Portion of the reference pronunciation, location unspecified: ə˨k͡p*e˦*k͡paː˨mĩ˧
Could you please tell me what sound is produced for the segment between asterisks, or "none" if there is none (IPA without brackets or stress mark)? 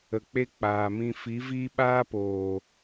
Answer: e˦